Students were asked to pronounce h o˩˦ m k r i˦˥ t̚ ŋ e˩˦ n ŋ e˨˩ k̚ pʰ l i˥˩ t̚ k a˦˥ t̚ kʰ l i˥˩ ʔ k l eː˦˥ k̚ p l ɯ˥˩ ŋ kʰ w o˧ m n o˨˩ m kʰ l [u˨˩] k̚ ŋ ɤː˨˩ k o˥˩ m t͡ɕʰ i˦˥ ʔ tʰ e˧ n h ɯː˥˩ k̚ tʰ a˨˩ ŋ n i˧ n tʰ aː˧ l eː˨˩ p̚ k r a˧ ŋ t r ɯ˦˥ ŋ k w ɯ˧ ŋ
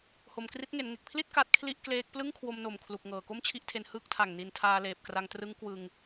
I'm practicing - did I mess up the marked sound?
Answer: no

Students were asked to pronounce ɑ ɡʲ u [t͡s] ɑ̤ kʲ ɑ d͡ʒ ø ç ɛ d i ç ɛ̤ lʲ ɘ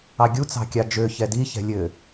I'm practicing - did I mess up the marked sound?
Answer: no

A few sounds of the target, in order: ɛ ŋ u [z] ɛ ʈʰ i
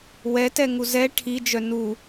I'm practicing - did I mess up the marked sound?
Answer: no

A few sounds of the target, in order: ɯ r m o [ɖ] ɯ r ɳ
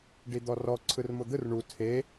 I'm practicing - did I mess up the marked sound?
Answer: yes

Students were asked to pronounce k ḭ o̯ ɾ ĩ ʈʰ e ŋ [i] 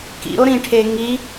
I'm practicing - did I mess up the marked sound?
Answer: no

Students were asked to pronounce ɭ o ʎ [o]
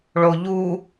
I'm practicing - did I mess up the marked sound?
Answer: yes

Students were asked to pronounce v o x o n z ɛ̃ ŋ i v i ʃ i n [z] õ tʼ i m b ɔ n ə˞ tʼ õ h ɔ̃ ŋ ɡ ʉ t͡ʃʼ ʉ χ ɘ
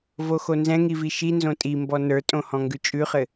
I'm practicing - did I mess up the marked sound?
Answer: no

